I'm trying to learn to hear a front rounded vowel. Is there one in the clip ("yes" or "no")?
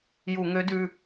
yes